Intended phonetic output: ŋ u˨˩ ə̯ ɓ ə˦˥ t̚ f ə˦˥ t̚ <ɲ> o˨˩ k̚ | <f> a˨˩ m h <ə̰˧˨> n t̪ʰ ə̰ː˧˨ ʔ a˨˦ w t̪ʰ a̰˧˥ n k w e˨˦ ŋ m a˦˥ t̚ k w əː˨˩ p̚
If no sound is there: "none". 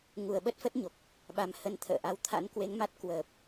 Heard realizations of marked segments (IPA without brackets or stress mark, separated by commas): ɲ, ɓ, ə˨˦